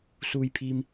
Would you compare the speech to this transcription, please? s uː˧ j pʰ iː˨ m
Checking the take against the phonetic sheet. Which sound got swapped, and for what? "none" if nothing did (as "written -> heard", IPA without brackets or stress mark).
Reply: none